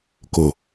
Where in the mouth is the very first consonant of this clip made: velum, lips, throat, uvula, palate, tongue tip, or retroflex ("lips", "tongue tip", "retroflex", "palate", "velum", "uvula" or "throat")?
velum